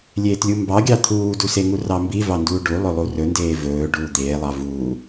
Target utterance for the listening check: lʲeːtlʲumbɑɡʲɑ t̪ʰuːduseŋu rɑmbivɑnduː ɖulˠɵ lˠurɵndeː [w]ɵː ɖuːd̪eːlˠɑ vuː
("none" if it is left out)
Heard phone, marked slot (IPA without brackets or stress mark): v